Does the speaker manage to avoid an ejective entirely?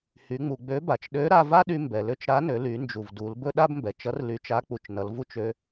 yes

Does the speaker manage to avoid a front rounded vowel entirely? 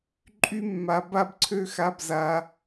no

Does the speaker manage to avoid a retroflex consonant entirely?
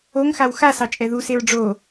no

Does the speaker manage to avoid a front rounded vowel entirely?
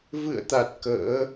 yes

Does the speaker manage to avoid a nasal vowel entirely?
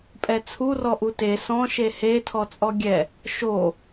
no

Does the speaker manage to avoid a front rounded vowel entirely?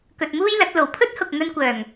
no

